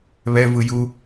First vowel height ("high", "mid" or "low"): mid